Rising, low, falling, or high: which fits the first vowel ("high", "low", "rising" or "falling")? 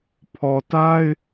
low